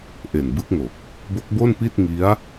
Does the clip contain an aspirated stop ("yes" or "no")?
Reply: no